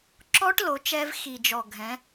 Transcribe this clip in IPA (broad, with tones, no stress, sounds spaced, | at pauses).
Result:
ǁ ɔ˦˥ ʈ l o˩˧ t͡ʃ ɛ˧ v x i˨˩ d͡ʒ ɔ˨˩ ɡʱ ɛ̃˩˧